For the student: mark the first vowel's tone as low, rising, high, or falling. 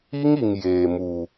high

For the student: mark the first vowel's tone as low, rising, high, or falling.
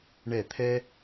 falling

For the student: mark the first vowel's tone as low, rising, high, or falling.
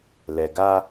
low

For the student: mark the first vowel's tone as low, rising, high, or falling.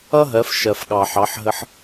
high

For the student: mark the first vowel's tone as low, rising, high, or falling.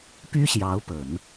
high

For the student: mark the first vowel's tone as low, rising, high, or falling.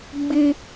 high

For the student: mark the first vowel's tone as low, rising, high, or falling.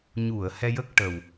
low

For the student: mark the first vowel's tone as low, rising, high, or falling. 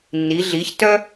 rising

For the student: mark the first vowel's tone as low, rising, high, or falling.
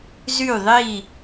falling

